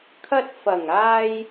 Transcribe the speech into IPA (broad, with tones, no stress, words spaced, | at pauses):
kʰɐ˧t̚fɐ˨˩ŋaː˧j